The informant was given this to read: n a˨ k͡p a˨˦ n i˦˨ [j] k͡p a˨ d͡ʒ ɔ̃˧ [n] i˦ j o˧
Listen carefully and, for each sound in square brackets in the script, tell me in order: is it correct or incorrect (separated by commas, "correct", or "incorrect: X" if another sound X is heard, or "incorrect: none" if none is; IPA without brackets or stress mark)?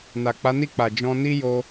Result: incorrect: none, correct